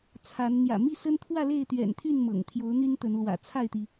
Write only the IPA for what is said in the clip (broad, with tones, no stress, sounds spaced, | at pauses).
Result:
t͡sʰ a˨˦ n n̪ j ä̰˨˩ m i˥˨ s ə˦ n t̪ʰ w ä˥˨ l e˥˨ ɪ̯ t̪ ɥ ɛ̰˨˩ n t̪ʰ y˥˨ n m ɤ̰˨˩ ŋ t̪ʰ j o˨˦ ʊ̯ n̪ y˦ n t̪ ə˨˦ n l w ä̰˨˩ t͡sʰ a˥˨ ɪ̯ t̪ i˩